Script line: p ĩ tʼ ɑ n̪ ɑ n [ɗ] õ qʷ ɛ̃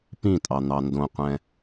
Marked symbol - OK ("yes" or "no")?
no